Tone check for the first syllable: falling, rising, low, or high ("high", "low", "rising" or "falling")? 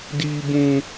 high